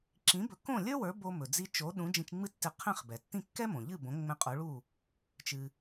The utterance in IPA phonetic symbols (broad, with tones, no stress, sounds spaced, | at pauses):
ǁ ĩ˩˥ b ɵ˩˥ k õ˥˩ lʲ ə˞˥ w ə˞˩˥ b o˧ m ɵ˩ d͡z i˧ t͡ʃ o˩˥ ɗ ũ˩˥ d͡ʒ ĩ˧ t͡ʃ ŋ͡m ɨ˥ tː ɪ˧ qʰ ɛ̃˥˩ χ b ɛ˩ tː ĩ˥˩ kː ɛ˥ m õ˩ ʎ ɨ˥˩ b õ˩˥ ŋ͡m ɛ̃˧ qʼ o˩˥ ɭ u˥˩ | t͡ʃ ɨ˩